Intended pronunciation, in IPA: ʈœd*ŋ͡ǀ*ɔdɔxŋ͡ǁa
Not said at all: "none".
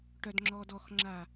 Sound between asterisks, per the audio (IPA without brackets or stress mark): ŋ͡ǁ